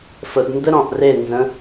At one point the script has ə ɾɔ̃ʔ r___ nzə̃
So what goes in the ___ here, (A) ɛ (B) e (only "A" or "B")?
B